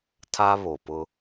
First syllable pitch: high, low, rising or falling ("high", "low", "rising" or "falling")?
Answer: high